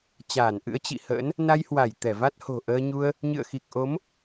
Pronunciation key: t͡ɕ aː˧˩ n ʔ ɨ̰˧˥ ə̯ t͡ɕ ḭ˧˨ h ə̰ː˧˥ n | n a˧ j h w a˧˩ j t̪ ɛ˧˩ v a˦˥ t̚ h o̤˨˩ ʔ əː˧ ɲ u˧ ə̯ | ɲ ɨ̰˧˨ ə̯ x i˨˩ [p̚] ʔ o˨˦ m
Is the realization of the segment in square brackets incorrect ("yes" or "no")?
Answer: yes